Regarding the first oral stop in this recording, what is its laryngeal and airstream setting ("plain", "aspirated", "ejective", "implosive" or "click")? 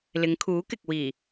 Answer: aspirated